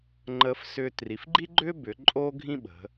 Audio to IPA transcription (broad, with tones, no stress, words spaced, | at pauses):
ŋ͡ǃəː˧fsʏː˧ tri˩˧fɡ͡ǃi˥ɡ͡ǃʏ˥ bʏ˩˧ ǃʼoː˥ɡʱĩ˥ɓə̤˩˧